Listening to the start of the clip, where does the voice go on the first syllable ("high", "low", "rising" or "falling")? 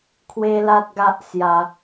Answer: high